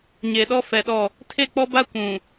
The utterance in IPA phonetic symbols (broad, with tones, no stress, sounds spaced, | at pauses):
ɲ e˨ ɗ ɔ˦ f ɛ˨ ɗ ɔ˦˨ | tʰ e˦˨ k͡p ɔ˦ b a˦ kʷ ũ˨